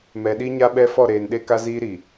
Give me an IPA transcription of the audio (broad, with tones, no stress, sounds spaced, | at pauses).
m ɛ˨ ɗ i˦ ɲ a˦ ɓ ɛ˦ f ɔ˦˨ ɾ eː˨ n ɗ e˦ k a˦ z iː˦ ɾ i˨